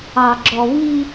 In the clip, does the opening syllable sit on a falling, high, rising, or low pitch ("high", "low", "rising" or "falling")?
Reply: low